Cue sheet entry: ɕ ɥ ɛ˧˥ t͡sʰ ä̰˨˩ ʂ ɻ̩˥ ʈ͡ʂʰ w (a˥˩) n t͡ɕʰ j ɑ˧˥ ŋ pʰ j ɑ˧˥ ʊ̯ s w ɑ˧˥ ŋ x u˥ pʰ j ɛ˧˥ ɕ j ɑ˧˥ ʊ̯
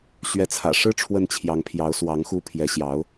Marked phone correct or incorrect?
incorrect